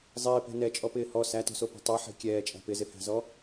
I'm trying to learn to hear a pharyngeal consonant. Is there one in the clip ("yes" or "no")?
yes